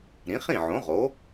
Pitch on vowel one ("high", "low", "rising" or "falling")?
rising